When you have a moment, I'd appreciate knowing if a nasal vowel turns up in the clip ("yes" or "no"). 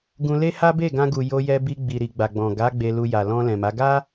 yes